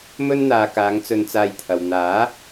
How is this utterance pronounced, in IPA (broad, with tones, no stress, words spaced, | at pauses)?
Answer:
mɵ˥nn̪aː˨ kaː˨˧ŋt͡sɵ˧nt͡saː˧jt̪ʰɐ˨w n̪aː˨˥